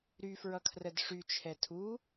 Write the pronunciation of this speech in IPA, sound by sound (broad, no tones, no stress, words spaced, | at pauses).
ɾyfɹʌkʰrəd ʂyt͡ʃʰɛ tʰu